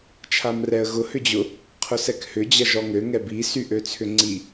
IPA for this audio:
t͡ʃʰ a m r ɛ ə̯ ɣ ʊ h ʏ d͡ʑ ʊ | qʰ ʊ s ɛ k h ʏ d͡ʑ ɐ ʒ ɔ ŋ ø ŋ ɛ b i s y ʔ ø t͡sʰ ʏ ŋ͡ǀ i

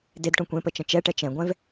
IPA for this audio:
d e d ʈ õ kʷ ẽ p ə t͡ʃ ə̃ t͡ʃ ɛ ʈ ɛ t͡ʃ ɛ̃ ɡʷ ɛ̃ v

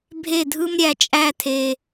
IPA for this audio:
bʱ e˦˨ dʱ ɯ˦ m ɾʲ æ˨ t͡ʃʼ æ˦˨ tʰ e˦

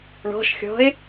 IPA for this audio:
ɳ ɔ̤ ʃ xʲ ɔ̤ ɪ̯

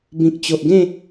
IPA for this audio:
b ĩ˨ k̚ t͡ɕ o˨ ʔ ɡ ẽ˥˧

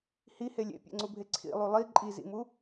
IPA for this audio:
h i h e lʲ ḛ pʲ ḛ ŋ͡ǀ u bʱ e ǀʰ ḭ lˠ u lˠ i ǃʼ i z ḭ m u

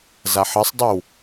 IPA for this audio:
z a ħ ʌ sˤ dˤ ʉ w

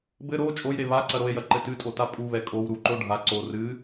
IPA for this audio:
b ɘ ɾ o t͡ʃʼ o j ɾ e β a ǀ ɐ ɾ o e̯ j ɐ ǃ ɘ t ɨ tʼ o t a pʼ u β ɛ kʼ o w ɾ u ǃ o ɖʱ a ǀ o r ɨ

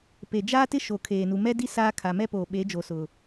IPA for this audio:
p e˨ d͡ʒ aː˦ t ɪ˦ ʃ o˨ kʰ eː˨ n u˨ m ɛ˦ d i˦ s aː˦ kʰ a˨ m ɛ˦ p oː˨ ɓ e˨˦ d͡ʒ o˨ s ʊ˨

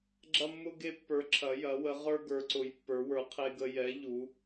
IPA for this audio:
ɡ͡ǁ ɐ˦ mː ʊ˦ ɡ e˦ pː ə˞˨˦ ǁʰ ɐ˨˦ j ɐ˨˦ w ə˨˦ ʁ ə˞˦ ɡ ə˞˨˦ ǀ ʊ˨˦ j pː ə˞˨˦ w ə˞˨˦ qʰ e˦ ɡ ə˦ j ɛ˨˦ ʎ u˨˦

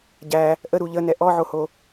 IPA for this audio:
ɟ æ | ʔ ə ɾ u ʎ ə n ɛ ʔ ɔ ʕ o h o

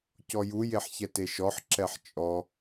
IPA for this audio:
c ɔ j u j e ħ ç ɛ t e ʃ ɔ ħ ǁ ɛ ħ t͡ʃʼ ɔ

